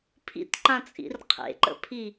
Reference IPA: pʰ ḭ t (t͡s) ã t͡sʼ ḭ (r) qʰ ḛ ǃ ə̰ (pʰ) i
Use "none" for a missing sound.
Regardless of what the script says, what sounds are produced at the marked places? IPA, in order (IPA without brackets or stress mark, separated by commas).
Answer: ǃ, r, pʰ